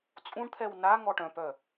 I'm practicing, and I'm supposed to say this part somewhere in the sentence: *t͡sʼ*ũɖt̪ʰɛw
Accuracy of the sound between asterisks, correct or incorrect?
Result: correct